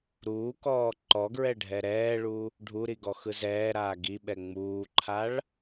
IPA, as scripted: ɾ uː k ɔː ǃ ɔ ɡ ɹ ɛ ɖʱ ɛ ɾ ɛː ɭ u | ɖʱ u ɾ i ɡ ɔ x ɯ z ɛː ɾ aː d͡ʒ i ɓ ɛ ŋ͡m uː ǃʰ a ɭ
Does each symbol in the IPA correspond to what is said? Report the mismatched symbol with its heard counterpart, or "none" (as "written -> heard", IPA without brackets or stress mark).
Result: d͡ʒ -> ɡ